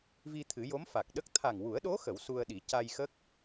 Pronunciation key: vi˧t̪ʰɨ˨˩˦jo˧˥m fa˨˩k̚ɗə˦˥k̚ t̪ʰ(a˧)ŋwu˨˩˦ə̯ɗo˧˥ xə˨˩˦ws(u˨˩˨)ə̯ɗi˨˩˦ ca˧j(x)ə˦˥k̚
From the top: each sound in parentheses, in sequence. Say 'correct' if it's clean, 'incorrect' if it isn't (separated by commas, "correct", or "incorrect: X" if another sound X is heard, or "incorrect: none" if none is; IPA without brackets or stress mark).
incorrect: a˨˩, incorrect: u˧, correct